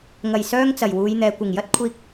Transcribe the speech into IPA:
ŋ ɐ˨˩ j s œː˥ ŋ t͡s ɐ˨˩ j w uː˨˧ j n̪ ɛː˨ kʷ ɪ˨˩ ŋ j ɐ˥ t̚ kʷʰ iː˧ k̚

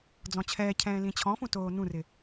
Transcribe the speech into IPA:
d͡z ɔ̃ t͡ɕʰ ɛː cʰ ɛ̃ː l ĩ t͡ɕʰ ɔ̃ f ũ t oː n ũ r ɪ

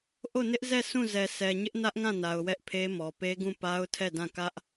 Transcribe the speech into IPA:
ʔ o˦˨ n ɪ˦ ʔ z ɛ˦˨ s ũ˦˨ z ɛ˨ s ɛ˨ ɲ ɪ˦ ʔ n ä˦ ʔ ŋ ã˦˨ n a˨ ʊ̯ w ɛ˦ ʔ pʰ e˦ m ɔ˨ p e˦ ɡ ũ˦˨ p a˦ ʊ̯ tʰ ɛ˦˨ d ã˦˨ k ä˦ ʔ

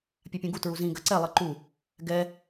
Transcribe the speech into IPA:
pʲ a pʲ ũ ɡ u t ɹ u z ĩ ɡ ɐ ǀ ɛ lˠ ɨ ǃ u | ɡ ɛ

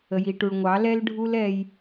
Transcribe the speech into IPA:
ə˨ j i˨ ʈ u˨ ɭ ŋʷ ɑ˨˦ l ɛ˦ l ɖʱ u˦ l ɛ˧ j

